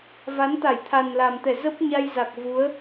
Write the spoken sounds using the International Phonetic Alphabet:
v a˨˦ n t̪ a˧˩ j t̪ʰ a˨˩ n l a˨˩ m t̪ ɛ˧˩ z ə˦˥ p̚ ɲ a˧ j z a˨˩ k̚ v u˨˦ ə̯

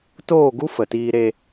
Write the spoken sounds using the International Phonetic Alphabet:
t oː˦˨ ɡ u˦ f ə˨ t iː˧ ɾ e˧

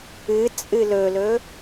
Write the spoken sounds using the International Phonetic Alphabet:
ɨ t͡sʼ ɨ l ɵ l ɵ

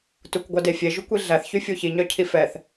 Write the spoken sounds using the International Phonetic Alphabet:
t u kʷ ɡʷ ɑ d e fʲ e ʒ u kʷ i ɮ æ θ ç y fʲ u ç i ɲ œ cʰ i f ɛ θ

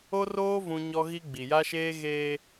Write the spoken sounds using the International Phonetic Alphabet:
o˦ r oː˦ v ũ˦ ɲ ɔ˦ ɣ i˦ ɡ͡b i˨ j a˦ ʃ eː˦ ɣ eː˦

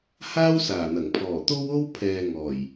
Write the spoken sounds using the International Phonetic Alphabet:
h aː˥ w s aː˨˩ n̪ ɐ˨˩ ŋ pʰ ɔː˨˩ t̪ o˥ w o˥ w pʰ ɛː˨ ŋ ɔː˨˩ j

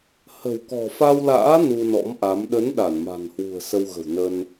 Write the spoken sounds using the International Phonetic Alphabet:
h ə̤˨˩ w k ɔ̤˨˩ f a˧ w l a̰ː˧˥ n u˧ n ɔ̰˧˥ m ʔ a˨˦ m ɗ ə˨˦ n ɗ a˧˩ n m a̤˨˩ n h w ṳ˨˩ ə̯ s ə˧ w ɣ ə̤˨˩ w n ə˧ n

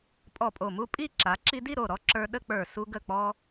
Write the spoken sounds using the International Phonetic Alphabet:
pʼ ɔ˧˩ pʼ o˧˩ m u˥˧ pʼ i˥˧ ǁ a˩˧ ǁ i˧ d i˥˧ ɾ o˧˩ ɾ ɔ˥ ǁ ə˞˧ ɗ ə˥˧ k͡p ə˞˧˩ s u˧ ɡ ə˧˩ k͡p ɔ˧

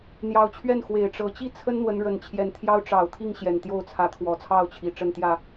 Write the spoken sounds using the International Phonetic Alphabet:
n̪ j ɑ˨˩ ʊ̯ t͡ɕʰ ɥ ɛ˥˨ n x w e˨˩ ɪ̯ ʈ͡ʂ ɤ˨˦ t͡ɕ i˥˨ t͡sʰ ə˦ n n̪ w ə˨˦ n ɻ ə˨˩ n t͡ɕʰ j ɛ˨˦ n t̪ʰ j ɑ˦ ʊ̯ ʈ͡ʂ ɑ˨˩ ʊ̯ t̪ʰ i˥˨ ŋ ɕ j ɛ˨˩ n t̪ j o˥˨ ʊ̯ t͡sʰ ä˨˦ t̪ʰ w ɔ˨˩ t͡sʰ ɑ˥˨ ʊ̯ t͡ɕʰ i˨˩ ʈ͡ʂ ə˥˨ n t̪ j ä˥˨

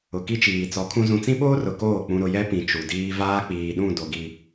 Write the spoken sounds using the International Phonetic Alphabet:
ʊ˨ k i˦ t͡ʃ iː˨ t͡s ɔ˨˦ kʰ ũ˦ z ũ˨ t͡s ĩ˦ ɓ oː˦ r ʊ˨ k oː˦˨ k͡p ũ˨ ɾ ʊ˨ j ɛ˦ p ĩ˨ t͡ʃ u˨ d iː˦ v aː˦ k͡p iː˨ ɗ ũ˦˨ d o˨ ɡ i˦

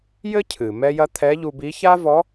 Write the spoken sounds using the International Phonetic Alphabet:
j ɘ˥ cʰ ɨ˩ m ɛ˥ j ɐ˥ t̪ʰ ɛ˧˥ ʎ u˧ b i˧˥ ç a˥ v ɔ˧˥

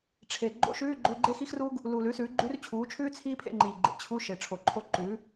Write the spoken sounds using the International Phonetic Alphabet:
ʈ͡ʂʰ e˨˩ ɡ͡ǃ o̰˧˥˧ ʃ ʉː˧˥˧ ɡ͡ǃ o˧˥˧ ɡ͡ǃ e˥ x i˥ x r uː˥ ɡ | l u˨˩ l ʉ˩˥ s ʉː˩˥ ɡ͡ǃ ʉ˧˥ r t͡ɕʰ uː˩˥ t͡ʃʰ ʉː˥ t͡sʰ iː˥ pʰ ḛ˧˥˧ ŋ͡ǃ iː˨˩ ɡ͡ǃ ḛ˨˩ t͡ɕʰ u˧˥˧ ʃ e˨˩ ʈ͡ʂʰ o˨˩ ǃʰ o˧˥ ǃ ʉː˩˥

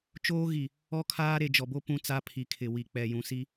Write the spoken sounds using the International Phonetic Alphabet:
t͡ʃ oː˦ ɣ i˨ | ɔ˦ kʰ aː˦ ɾ e˨ d͡ʒ ɔ˨ b o˦ p ũ˦˨ t͡s a˦ pʰ i˨˦ kʰ ɪ˨ w i˨ k͡p ɛ˨ j ũ˨ s i˦

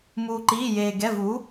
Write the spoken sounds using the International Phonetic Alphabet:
m uː˧ ǃ iː˧˥˧ j eː˧ ɡ ɛ˧˥˧ v u˨˥

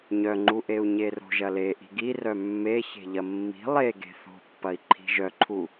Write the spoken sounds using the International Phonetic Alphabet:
ɲ œ ŋ͡ǃ u ʔ e u̯ ɲ e r o̤ ʒ ɐ l e ʔ i̤ ɡ i r œ mː e ç e̤ ʎ ɐ mː i̤ lˠ e ɡ e̤ θ o̤ pː ɐ i̯ ǃʰ i̤ ʒ œ ǃʰ u

